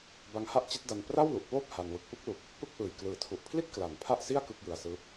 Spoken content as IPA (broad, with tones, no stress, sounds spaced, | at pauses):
b a˦˥ ŋ h a˥˩ ʔ t͡ɕ i˦˥ t̚ d a˧ n p r a˥˩ w l u˨˩ ʔ p oː˥˩ p̚ h a˧ n w ɯ˨˩ k̚ p ɯ˥˩ k̚ l u˨˩ k̚ | p ɯ˥˩ k̚ ʔ ɯː˨˩ j k l ɯː˩˦ tʰ u˨˩ ʔ pʰ l i˥˩ t̚ k l a˨˩ n pʰ a˥˩ ʔ s i˥˩ a̯ k ɯ˥˩ k̚ j ɯ˧ a̯ s ɯː˦˥ p̚